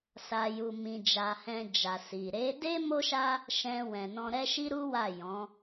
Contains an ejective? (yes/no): no